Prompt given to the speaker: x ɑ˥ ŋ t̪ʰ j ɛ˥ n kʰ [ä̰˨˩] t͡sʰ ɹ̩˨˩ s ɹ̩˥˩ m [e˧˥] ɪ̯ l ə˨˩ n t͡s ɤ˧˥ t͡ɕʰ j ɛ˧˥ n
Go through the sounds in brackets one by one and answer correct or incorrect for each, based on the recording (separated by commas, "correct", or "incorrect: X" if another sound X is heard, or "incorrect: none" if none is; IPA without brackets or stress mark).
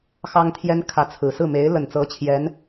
incorrect: ä˧˥, correct